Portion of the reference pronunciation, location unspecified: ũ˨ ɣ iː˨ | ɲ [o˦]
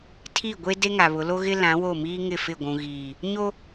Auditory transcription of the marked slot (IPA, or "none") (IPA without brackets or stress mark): o˦